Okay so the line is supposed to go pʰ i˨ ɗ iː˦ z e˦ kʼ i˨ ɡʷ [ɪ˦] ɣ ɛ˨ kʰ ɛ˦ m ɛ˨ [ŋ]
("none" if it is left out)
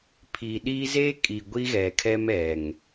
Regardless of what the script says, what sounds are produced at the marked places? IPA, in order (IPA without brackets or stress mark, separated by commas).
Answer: i˦, ŋ